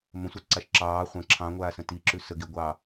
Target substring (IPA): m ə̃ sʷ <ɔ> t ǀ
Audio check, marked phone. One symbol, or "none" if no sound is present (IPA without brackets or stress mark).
ɑ